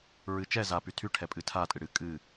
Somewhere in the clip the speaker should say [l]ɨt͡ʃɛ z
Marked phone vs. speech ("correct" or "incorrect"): incorrect